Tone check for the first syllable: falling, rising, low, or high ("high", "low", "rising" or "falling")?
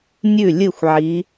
falling